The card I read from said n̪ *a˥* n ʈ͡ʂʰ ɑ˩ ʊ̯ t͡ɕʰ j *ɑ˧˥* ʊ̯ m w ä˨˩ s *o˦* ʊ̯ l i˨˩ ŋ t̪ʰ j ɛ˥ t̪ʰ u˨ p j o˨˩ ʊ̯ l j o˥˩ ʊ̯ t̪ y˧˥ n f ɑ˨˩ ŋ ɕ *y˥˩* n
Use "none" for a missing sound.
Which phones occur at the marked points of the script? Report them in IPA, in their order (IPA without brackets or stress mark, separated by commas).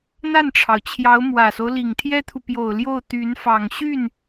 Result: a˥˩, ɑ˧˥, o˦, y˥˩